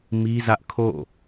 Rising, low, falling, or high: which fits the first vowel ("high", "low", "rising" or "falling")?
high